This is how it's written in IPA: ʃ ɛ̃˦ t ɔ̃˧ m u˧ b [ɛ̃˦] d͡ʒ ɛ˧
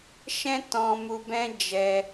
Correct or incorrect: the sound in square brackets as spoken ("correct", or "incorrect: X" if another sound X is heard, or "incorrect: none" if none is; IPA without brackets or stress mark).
correct